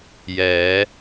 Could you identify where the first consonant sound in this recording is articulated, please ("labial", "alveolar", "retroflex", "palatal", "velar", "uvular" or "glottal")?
palatal